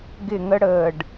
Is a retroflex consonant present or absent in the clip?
present